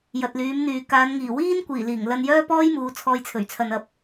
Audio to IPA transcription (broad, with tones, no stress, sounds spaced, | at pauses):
j ɐ˨ t̚ l yː˨˧ m n̪ yː˨ k aː˨˧ n ŋ iː˨˩ w iː˥ n kʷ iː˨˩ l iː˨˩ ŋ l ɐ˧ n j œː˥ p ɔː˥ j m uː˨˧ t͡sʰ ɔː˧ j t͡sʰ ɵ˨˩ ɥ t͡sʰ ɐ˨ n ɐ˨ p̚